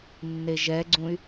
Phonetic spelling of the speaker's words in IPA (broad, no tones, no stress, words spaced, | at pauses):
nːeʒɛɡ͡ǀũy̯